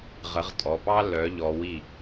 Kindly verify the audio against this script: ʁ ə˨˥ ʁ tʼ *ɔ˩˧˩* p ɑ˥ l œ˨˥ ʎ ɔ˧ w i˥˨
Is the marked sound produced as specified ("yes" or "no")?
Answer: yes